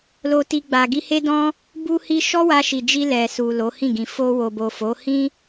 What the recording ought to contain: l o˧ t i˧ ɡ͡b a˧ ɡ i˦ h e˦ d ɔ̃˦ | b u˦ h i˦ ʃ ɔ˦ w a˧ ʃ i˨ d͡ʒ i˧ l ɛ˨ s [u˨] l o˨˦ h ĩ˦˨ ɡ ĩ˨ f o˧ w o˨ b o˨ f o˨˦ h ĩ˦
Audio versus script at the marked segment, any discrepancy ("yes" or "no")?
no